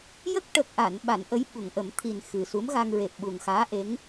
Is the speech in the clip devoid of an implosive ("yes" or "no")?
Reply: no